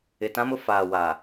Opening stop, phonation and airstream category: plain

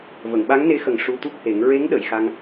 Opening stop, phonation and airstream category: implosive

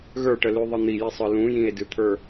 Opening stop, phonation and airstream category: plain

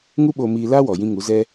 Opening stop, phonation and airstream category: implosive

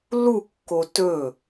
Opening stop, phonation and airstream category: plain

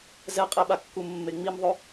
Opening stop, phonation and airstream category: ejective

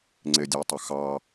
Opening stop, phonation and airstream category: click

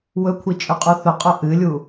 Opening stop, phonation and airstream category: aspirated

